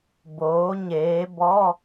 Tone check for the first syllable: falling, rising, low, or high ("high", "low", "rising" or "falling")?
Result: rising